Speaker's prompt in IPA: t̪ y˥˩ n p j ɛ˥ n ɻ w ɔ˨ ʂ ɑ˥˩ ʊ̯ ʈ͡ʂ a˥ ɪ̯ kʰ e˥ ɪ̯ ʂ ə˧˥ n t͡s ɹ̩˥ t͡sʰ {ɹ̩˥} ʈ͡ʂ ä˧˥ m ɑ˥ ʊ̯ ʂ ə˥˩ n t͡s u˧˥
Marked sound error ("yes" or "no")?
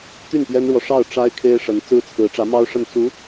yes